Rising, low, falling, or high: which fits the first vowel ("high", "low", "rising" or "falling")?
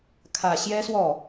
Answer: low